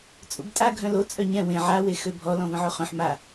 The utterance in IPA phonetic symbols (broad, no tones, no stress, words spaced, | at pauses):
t͡sʼṵbtʼa ɡʱœ̃lo t͡sʼœɲɛ̃ wẽ ʕa wexøbʱɔ lɔ̃və̃ʕoχœ̃ħ ma